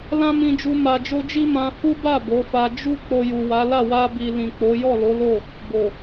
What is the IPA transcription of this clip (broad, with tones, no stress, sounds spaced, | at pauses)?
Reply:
l ã˦ m ĩ˧ d͡ʒ u˧ m a˧ d͡ʒ o˦ d͡ʒ i˦ m ã˧ h u˦ b a˦˨ b o˨˦ f a˧ d͡ʒ u˦ k͡p o˧ j u˨ w a˨˦ l a˦˨ w a˧ b i˨ l ĩ˨ k͡p o˨˦ j ɔ˦˨ l o˨˦ l o˦˨ | b o˨